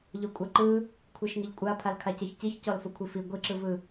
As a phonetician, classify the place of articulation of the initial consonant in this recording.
palatal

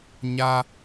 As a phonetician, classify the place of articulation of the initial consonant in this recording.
palatal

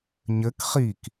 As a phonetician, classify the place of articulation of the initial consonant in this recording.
palatal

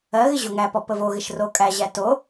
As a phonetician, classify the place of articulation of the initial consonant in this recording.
velar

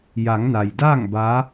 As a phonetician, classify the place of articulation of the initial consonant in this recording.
palatal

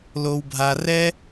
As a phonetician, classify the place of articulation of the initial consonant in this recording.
alveolar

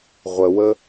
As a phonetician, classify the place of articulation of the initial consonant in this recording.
uvular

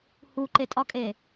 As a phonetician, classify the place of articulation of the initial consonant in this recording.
glottal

